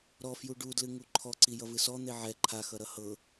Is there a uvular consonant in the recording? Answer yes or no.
no